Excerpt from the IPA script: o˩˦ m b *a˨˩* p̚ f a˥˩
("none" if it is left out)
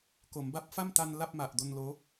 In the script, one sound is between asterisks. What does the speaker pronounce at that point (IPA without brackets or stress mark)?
a˦˥